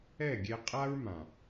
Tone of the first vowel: falling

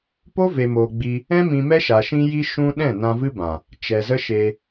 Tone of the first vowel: high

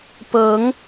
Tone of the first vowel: rising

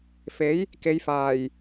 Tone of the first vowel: rising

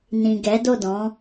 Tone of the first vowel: low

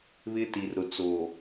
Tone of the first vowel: high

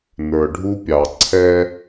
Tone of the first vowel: low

